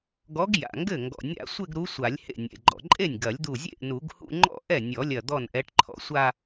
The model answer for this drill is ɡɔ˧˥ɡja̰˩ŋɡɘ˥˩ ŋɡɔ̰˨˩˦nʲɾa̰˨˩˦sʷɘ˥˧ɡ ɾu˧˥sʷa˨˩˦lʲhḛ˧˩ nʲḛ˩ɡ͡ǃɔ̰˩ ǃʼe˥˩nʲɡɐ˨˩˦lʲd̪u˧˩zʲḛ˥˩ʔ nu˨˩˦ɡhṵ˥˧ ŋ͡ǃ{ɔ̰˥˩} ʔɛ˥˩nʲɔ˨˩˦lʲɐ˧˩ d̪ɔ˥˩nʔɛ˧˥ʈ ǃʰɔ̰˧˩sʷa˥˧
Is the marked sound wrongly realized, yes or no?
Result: no